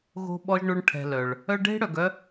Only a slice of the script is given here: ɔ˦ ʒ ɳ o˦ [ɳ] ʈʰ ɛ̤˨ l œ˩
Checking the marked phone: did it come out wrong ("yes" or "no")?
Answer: no